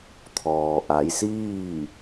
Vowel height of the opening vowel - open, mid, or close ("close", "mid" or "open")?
mid